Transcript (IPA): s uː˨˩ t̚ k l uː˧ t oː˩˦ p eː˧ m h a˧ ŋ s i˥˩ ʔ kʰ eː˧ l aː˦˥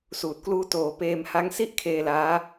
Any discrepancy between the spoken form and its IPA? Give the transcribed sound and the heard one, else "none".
a˧ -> a˦˥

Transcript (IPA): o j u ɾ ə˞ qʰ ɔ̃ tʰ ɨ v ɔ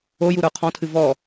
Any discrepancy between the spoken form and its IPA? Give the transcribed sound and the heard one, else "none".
none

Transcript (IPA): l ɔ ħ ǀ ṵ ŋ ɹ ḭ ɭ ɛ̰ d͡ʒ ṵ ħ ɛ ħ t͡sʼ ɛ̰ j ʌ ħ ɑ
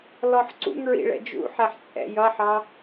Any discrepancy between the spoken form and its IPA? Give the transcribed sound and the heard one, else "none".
none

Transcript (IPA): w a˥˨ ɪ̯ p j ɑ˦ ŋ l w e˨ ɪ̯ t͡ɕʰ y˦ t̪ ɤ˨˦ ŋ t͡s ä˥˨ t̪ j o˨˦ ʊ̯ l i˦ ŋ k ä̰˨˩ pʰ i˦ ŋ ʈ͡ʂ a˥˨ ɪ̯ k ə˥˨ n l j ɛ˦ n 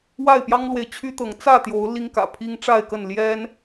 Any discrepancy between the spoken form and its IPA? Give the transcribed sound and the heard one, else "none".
none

